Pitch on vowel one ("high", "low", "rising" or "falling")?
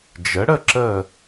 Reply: rising